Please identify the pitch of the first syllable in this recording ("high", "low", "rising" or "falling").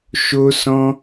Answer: high